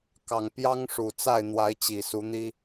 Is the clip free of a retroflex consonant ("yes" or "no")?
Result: no